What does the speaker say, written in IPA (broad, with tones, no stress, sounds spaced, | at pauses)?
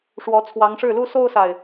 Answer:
ʂ w ɔ˧˥ t͡sʰ w ɑ˧˥ ŋ ʂ ɻ̩˥˩ l u˥ s o˥ ʊ̯ s a˨ ɪ̯